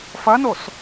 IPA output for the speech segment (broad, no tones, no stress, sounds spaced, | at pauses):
f ɐ n o s